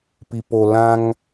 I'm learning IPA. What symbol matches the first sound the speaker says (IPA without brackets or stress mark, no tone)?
p